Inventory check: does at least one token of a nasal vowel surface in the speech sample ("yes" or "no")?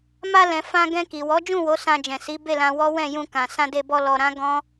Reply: yes